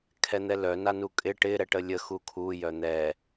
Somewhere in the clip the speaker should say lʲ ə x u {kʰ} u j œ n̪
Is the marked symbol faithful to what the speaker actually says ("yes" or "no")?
yes